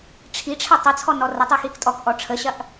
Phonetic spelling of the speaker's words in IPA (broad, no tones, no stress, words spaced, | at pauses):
ʈ͡ʂʰiʈ͡ʂʰə tˤət͡sʰɔ nɔrətˤi xiktʼɔkʔɔ ʈ͡ʂʰəɕɐʔ